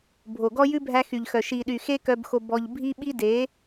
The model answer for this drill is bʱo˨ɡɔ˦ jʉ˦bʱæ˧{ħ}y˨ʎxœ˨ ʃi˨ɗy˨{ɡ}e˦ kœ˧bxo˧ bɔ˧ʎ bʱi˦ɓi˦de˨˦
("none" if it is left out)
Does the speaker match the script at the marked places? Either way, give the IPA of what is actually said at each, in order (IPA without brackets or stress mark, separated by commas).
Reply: x, x